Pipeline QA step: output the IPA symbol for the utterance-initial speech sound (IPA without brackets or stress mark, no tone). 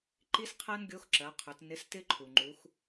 ǃ